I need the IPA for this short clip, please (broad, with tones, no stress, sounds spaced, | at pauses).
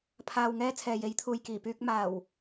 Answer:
pʰ aː˨ w ŋ ɛː˧ t͡sʰ ɛː˨ j e˨˥ j t̪ʰ uː˨ j k iː˨˩ p yː˧ k̚ m aː˨˩ w